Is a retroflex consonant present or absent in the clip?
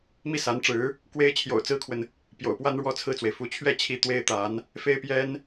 present